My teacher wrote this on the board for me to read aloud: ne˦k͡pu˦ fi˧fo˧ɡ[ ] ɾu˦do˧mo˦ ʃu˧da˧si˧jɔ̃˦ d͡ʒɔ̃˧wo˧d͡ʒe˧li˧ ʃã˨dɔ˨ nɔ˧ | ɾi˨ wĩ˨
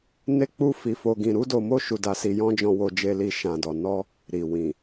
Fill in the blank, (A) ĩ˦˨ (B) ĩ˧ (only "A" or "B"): B